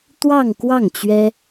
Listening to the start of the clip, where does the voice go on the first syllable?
falling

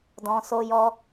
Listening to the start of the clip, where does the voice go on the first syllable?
low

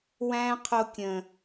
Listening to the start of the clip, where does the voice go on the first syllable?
high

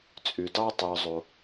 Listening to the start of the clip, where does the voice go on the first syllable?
low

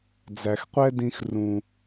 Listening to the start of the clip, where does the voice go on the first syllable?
low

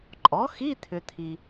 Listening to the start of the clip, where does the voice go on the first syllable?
rising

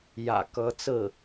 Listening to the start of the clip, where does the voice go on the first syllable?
low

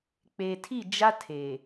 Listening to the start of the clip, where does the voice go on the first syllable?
low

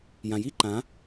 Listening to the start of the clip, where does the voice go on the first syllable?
low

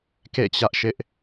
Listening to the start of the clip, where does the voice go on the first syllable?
falling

